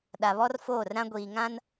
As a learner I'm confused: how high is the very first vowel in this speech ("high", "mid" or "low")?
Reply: low